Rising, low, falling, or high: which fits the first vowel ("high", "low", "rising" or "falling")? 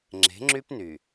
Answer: rising